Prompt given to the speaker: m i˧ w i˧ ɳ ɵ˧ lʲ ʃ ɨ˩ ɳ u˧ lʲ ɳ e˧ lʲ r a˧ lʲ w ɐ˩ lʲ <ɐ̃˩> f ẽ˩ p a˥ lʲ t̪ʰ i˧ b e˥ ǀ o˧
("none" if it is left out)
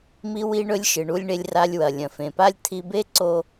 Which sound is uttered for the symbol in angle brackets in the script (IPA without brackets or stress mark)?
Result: ɐ̃˩